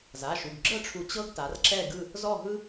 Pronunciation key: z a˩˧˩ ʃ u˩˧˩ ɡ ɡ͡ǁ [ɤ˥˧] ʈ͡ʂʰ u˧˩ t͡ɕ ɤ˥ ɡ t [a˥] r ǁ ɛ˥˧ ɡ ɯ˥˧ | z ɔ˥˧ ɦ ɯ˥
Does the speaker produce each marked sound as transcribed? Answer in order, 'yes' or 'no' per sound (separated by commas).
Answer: yes, no